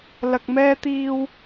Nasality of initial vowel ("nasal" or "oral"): oral